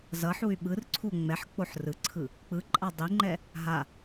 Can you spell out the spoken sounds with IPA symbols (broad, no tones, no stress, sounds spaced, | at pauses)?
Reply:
z ʌ ħ u y̯ ɓ ɯ r ǀʰ u ŋ͡m ɛ ħ k͡p o ħ r ɯ ǀʰ ɯ | k͡p ɯ ǃʼ a dˤ i ŋ͡ǃ ɛ | ɦ a